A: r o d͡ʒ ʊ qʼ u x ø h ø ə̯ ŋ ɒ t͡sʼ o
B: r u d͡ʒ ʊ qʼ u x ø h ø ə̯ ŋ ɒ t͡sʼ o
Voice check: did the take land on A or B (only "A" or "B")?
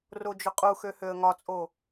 A